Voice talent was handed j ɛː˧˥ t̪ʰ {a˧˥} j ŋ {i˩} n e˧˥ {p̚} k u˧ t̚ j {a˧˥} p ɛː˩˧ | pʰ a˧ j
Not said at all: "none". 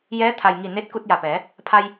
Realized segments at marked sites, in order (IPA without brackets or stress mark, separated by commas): a˩, i˧˩, t̚, a˧˩